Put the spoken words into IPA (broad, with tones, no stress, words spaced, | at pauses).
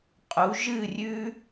qʼu˨˦ ʒɨ˦˨rʲʉ˦